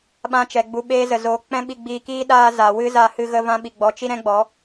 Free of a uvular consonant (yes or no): yes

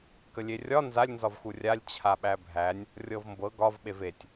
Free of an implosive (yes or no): no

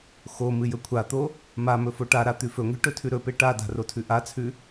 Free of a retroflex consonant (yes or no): no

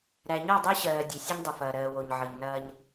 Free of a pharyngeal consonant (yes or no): no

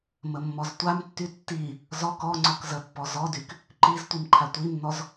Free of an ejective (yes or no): yes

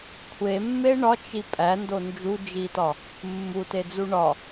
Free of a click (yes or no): yes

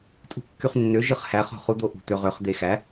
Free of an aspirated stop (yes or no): yes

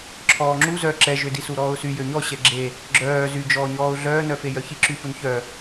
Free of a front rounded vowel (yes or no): no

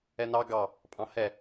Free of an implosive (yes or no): yes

